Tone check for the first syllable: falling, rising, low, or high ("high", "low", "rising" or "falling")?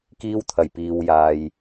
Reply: high